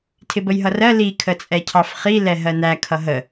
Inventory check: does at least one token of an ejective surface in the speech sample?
yes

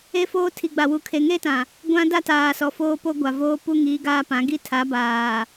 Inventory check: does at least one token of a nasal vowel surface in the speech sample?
yes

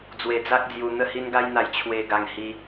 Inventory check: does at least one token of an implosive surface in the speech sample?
no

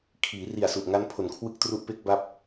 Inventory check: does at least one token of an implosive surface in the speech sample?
no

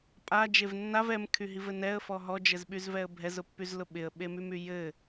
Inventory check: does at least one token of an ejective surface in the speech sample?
yes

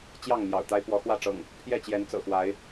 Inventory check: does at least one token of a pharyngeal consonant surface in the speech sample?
no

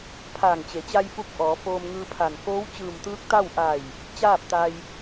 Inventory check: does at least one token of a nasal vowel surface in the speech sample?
no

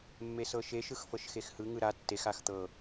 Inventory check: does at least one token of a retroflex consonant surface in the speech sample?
no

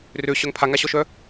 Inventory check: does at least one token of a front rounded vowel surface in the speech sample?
yes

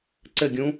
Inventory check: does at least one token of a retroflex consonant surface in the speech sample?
no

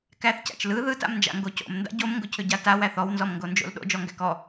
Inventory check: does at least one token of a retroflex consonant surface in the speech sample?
no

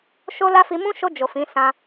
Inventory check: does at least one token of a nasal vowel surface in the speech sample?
yes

